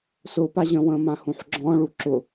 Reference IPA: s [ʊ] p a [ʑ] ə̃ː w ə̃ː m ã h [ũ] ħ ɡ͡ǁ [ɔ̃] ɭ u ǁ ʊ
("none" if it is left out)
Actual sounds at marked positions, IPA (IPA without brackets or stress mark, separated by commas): ʊː, ʑ, ũ, ɔ̃